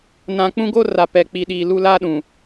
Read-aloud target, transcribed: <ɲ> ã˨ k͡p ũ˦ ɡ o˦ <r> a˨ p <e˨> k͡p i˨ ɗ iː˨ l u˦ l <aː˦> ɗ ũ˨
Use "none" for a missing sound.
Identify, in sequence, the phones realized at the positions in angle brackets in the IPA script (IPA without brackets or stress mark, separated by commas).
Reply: n, r, ɛ˨, aː˦